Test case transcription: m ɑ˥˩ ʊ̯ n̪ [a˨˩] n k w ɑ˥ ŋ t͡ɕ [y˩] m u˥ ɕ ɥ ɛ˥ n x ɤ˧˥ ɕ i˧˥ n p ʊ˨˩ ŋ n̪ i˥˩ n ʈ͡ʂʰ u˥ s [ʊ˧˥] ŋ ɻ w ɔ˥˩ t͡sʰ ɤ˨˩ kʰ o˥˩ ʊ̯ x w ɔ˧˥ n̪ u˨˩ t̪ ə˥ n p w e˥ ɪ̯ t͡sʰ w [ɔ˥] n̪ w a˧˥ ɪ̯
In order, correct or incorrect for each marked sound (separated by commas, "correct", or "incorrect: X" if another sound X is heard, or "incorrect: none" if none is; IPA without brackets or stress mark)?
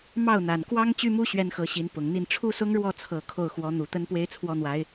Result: correct, incorrect: y˥, incorrect: ʊ˥, correct